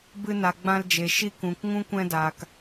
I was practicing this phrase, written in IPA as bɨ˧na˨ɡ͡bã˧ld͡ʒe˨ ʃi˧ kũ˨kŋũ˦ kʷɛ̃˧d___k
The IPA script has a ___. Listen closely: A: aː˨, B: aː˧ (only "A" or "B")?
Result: A